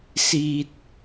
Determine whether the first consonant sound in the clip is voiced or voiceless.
voiceless